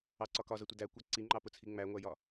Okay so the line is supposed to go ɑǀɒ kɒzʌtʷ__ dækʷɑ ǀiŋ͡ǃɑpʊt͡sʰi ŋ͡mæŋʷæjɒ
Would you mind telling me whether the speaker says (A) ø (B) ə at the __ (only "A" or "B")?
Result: B